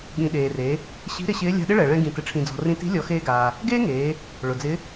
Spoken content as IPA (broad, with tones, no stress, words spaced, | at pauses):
ɠĩ˩ ɗeː˩re˩˧ | ɕi̤˧˥ ɾɪ˧ɕɪː˧˥ lʲa̤˧ɗɪ˥ɭɛ˩ɭɛ̃˧ ɡĩ˩tɪ˩ ʈ͡ʂʰĩ˩d͡zɔ̤˩rĩ˧ti̤˧˥ lʲɔ˩˧xeː˧ɡaː˩ | ɡeː˥ŋeː˩˧ | ɭʊ˩d͡zɪ˧˥